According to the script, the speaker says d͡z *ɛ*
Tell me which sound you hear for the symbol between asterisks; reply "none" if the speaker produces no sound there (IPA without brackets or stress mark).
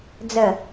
ə